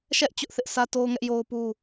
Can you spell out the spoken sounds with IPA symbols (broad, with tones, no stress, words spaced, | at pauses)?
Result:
ʃɛ˦ʔ t͡ɕʊ˦ʔθɪ˦ʔ sʰä˦to˦ʊ̯ ŋɛ˦ʔjo˦ʊ̯pu˦